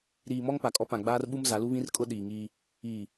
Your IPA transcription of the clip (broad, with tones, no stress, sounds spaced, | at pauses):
ɾ iː˨ m ɔ˦ ŋ p a˨ kʼ ɔ˦ p ã˨ ɡ͡b aː˦ r ɓ u˦ m z a˨˦ l u˦ β ĩ˦ r kʼ ʊ˦ ɗ iː˨ ŋ iː˦ | iː˨